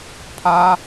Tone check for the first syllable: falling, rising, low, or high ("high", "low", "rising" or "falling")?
high